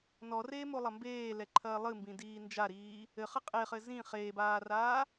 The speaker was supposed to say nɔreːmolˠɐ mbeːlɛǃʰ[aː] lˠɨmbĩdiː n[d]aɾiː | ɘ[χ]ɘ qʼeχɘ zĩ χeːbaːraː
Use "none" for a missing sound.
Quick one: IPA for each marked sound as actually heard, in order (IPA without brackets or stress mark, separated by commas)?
ɐː, d͡ʒ, χ